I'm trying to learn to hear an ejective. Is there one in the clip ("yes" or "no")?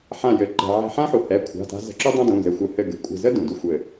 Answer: yes